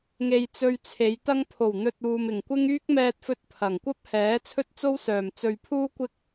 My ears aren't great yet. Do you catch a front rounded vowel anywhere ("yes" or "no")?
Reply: yes